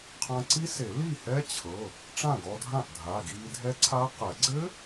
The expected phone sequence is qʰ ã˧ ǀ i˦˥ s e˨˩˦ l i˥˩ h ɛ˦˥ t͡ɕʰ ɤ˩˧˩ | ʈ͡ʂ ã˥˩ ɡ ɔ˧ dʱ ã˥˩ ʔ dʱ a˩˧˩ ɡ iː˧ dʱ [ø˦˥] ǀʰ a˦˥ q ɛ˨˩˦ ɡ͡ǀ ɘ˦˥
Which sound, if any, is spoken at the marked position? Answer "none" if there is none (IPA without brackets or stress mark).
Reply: ɛ˦˥